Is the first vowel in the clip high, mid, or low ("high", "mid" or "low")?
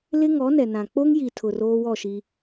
high